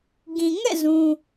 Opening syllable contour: low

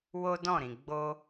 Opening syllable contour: high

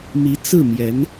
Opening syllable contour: rising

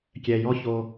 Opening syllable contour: low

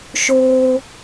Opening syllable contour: high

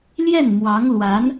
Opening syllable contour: falling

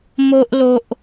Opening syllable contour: high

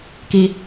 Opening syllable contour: high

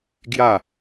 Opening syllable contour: falling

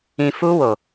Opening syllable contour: low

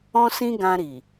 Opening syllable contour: high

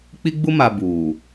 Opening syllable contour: high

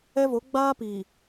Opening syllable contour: high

